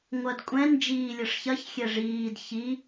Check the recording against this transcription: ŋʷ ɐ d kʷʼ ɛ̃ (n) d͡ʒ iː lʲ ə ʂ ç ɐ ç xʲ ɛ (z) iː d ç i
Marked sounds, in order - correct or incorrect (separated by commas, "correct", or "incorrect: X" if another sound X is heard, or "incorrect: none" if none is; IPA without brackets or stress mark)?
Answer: correct, incorrect: ʐ